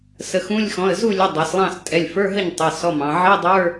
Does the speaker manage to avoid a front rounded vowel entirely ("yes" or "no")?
yes